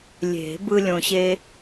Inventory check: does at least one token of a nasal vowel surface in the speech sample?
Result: yes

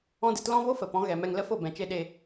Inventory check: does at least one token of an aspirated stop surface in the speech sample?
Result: no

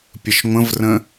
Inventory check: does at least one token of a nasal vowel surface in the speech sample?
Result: yes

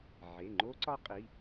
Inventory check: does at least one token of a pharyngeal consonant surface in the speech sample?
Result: yes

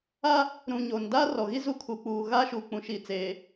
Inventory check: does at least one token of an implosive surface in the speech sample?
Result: no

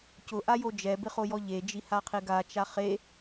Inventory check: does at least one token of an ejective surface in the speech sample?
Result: no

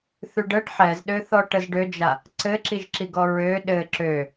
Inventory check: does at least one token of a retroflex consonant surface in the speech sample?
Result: yes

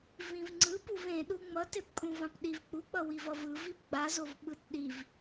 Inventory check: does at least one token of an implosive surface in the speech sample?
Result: yes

